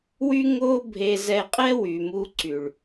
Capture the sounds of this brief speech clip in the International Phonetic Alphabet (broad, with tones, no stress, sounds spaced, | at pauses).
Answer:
w y˦ ŋ o˦ bʱ e˧ z ɛ˧ qʼ ɛ˦ w y˨ m u˧ ǀ y˨ ɭ